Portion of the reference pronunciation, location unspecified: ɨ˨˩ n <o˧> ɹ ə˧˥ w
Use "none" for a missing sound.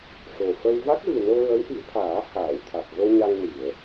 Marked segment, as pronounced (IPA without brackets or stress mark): o˧